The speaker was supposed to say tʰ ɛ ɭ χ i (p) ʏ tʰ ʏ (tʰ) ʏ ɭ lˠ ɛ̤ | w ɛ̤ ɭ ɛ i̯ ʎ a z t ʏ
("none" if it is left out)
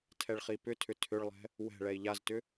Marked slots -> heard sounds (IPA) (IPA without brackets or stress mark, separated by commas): p, tʰ